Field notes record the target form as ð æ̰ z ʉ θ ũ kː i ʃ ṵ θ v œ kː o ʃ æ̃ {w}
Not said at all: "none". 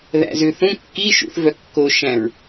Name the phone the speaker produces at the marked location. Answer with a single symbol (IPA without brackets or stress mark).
ɹ